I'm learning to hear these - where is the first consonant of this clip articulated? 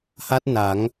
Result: throat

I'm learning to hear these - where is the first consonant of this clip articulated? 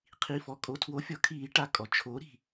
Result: uvula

